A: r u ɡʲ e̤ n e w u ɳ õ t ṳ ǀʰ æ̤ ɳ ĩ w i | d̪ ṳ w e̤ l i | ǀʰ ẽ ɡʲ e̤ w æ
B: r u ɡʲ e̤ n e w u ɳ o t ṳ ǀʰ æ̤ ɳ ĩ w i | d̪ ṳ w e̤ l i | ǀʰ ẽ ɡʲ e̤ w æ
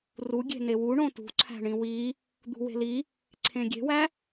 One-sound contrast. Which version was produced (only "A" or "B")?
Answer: A